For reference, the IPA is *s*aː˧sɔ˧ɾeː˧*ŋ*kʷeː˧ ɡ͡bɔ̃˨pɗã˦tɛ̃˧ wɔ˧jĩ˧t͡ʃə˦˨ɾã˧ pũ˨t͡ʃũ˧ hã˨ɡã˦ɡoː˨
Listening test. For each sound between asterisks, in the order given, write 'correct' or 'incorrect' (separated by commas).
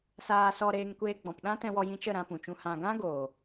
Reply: correct, correct